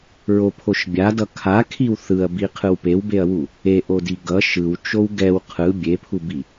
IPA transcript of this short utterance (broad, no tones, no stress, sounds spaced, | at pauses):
ɹ o pʰ o ʃ bʲ a d ʌ kʰ a kʰ i w θ ɯ ɐ̯ b i qʰ ɯ w p e w b e ɐ̯ w u | e ʔ o d i ɡ ʌ ʃ ɯ w t͡ʃ o w ɡ ɛ w qʰ ɯ bʲ e pʰ u b i